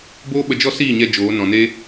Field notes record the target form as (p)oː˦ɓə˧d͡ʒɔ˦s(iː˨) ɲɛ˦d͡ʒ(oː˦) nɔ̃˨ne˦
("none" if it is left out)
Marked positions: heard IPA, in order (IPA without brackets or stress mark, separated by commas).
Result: b, iː˦˨, oː˨˦